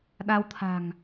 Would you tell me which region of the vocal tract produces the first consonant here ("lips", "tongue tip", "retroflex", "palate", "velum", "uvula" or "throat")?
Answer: tongue tip